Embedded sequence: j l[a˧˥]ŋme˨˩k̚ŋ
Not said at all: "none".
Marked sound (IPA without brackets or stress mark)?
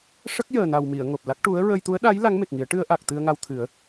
a˧˥